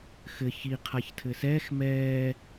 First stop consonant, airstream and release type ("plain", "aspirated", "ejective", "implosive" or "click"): aspirated